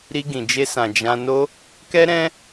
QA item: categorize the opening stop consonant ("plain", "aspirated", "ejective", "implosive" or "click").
plain